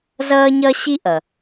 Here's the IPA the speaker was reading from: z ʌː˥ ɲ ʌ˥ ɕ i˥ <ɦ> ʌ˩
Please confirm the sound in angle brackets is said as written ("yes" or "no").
no